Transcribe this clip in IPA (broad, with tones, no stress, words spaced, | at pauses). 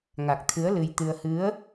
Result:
ŋa˨˩k̚t̪ʰɨ˨˦ə̯ lɨ˧jt̪ɨ˧ə̯ hɨ˨˦ə̯